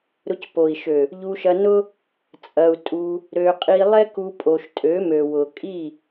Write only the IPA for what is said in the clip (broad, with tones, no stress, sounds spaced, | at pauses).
ɾ ʊ˧ c p o˨ i̯ ʃ ø˨ | ʎ u˧ ʃ ɐ˧ n ʊ˦ | t͡sʼ ɐ˧ u̯ tʼ u˧ | ɾ ø˧ qʼ i˧ lˠ ɛ˦ k u˧ pʼ o˧ ʃ tʼ ø˨˦ m ø˨ w ʊ˨ kʼ i˦˨